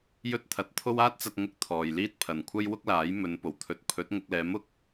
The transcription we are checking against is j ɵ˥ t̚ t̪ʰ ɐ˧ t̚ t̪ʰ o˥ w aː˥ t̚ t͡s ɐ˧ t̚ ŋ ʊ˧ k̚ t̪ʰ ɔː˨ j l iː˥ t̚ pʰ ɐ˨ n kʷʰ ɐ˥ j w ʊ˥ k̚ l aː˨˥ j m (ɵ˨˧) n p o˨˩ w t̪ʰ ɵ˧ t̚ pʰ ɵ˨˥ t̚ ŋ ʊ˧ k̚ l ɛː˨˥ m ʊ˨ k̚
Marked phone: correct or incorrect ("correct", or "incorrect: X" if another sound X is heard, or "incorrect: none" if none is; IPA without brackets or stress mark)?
correct